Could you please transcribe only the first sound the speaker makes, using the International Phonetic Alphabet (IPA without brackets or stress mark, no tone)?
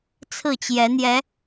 t͡sʰ